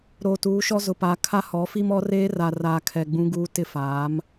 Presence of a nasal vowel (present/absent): present